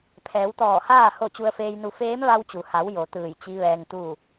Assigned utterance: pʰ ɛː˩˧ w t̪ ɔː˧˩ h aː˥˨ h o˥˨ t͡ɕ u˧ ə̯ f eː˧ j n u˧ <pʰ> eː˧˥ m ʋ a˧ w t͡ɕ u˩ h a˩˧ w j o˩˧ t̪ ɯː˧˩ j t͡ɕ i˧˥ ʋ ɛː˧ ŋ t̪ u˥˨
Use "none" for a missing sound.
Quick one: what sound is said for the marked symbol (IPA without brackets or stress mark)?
f